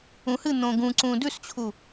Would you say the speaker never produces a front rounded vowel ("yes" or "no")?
yes